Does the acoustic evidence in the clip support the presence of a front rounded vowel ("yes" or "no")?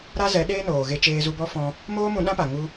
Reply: no